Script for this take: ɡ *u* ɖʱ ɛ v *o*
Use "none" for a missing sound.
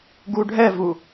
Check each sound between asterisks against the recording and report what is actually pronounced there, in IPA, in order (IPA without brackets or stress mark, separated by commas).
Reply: u, u